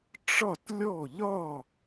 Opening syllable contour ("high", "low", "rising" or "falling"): falling